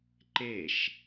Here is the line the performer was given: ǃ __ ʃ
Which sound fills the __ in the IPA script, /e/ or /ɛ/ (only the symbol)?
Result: e